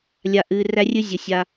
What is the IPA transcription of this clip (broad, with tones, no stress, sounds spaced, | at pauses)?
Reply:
lʲ a˨ ʔ ɨ˨ r æ˦ rʲ ɨ˦ zʲ ə˩ sʲ a˨